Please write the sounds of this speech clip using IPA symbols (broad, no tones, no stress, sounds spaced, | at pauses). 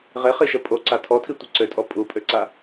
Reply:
ʁ e χ i ʃ ə pʼ o ǀ a tʰ ɔ tʰ i tʷ ə ǀ ø tʼ ɔ pʼ u pʼ ø ǀ a